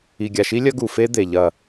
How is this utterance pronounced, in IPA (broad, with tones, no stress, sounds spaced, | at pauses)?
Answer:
i˨ ɡʲ a˨ ʃ i˦ lʲ ɐ˦ ɡ u˨ f e˦ d̪ e˨ ʎ ɐ˦˨